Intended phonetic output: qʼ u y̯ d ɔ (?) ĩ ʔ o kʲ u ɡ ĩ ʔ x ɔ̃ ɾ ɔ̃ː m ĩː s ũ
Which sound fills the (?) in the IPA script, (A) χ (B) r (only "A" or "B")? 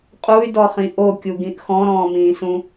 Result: A